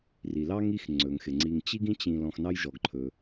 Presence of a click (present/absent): present